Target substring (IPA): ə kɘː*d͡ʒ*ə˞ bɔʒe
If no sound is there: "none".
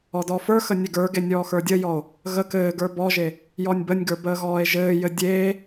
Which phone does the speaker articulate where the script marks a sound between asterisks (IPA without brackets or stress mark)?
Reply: ɡ